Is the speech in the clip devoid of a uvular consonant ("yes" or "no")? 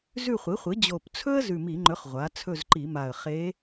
no